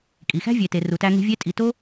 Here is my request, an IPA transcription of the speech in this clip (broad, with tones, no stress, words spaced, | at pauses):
kʼi˨xæ̤˦vʲe˨te˨ ru˨tæ˧ŋe̤˧ vʲe˦tʼi˧ to˦